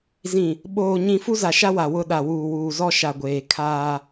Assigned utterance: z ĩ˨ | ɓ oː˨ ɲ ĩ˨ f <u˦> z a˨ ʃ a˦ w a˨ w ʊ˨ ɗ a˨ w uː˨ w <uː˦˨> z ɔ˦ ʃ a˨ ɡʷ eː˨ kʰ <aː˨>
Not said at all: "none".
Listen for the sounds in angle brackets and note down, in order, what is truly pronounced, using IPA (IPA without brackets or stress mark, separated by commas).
u˦, uː˨, aː˦